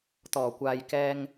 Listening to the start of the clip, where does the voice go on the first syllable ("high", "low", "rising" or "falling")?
low